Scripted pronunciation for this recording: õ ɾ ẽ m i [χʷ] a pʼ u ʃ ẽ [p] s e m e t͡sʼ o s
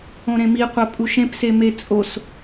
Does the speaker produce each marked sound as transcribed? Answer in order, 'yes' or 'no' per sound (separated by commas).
no, yes